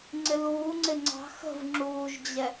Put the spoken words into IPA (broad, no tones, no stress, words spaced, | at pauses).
ŋ͡ǀɪluːŋ͡ǀɪ ŋ͡ǀɑ̤ xə̤v ŋ͡ǁuːʒd͡ʑɛ